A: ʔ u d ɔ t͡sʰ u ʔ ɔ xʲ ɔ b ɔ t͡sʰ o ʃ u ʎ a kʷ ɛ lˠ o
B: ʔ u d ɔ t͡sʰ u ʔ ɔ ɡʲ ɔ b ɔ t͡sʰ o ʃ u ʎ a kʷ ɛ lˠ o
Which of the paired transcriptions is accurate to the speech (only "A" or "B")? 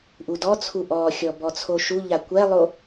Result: A